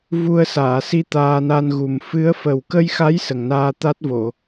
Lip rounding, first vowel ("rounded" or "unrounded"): rounded